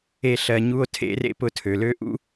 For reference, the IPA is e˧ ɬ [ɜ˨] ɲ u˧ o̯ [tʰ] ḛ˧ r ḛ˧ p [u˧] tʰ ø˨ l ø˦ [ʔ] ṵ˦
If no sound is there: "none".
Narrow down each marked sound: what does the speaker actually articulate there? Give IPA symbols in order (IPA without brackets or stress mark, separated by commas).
ɜ˨, tʰ, ʊ˧, ʔ